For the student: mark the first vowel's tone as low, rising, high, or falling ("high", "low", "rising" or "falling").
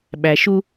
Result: low